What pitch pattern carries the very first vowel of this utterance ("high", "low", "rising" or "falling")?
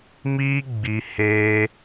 high